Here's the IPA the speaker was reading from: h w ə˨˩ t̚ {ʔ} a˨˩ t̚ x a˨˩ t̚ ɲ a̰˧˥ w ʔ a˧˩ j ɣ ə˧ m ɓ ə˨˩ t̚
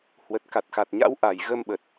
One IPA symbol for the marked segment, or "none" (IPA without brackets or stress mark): k